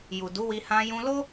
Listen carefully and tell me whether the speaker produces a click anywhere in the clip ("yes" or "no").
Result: no